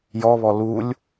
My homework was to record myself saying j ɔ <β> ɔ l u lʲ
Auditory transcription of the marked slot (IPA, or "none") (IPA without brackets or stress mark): β